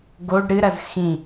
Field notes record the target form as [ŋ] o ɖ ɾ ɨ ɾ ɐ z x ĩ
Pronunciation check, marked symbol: incorrect: ɡ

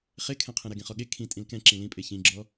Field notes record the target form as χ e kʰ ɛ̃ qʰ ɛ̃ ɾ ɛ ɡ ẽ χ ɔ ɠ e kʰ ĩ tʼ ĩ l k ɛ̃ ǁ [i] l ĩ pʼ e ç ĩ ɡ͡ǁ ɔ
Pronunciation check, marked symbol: incorrect: ĩ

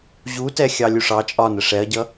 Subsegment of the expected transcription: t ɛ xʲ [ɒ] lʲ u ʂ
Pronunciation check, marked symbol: incorrect: ɑ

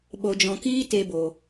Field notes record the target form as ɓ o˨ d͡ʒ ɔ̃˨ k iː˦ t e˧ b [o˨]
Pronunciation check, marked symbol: correct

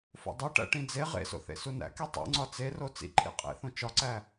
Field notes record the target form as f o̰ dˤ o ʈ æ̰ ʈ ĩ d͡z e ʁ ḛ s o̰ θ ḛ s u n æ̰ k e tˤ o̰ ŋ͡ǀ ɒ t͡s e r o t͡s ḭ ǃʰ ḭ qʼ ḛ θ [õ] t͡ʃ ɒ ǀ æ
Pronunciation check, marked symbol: correct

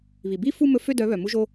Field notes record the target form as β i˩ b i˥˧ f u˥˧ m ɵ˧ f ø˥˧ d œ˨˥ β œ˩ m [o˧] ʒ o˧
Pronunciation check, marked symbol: incorrect: u˧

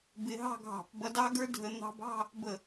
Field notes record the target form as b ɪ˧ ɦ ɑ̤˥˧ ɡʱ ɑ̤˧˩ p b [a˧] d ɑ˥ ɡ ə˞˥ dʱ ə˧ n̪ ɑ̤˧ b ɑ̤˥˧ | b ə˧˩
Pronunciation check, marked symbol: incorrect: ʌ˧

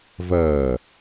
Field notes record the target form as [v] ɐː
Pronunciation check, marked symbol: correct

